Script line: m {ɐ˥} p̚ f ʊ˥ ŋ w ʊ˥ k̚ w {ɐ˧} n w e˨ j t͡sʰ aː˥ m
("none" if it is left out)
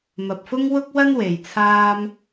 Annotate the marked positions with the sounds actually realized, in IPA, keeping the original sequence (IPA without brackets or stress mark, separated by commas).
ɐ˨, ɐ˥